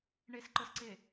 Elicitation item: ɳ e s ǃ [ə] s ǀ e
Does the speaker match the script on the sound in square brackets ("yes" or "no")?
yes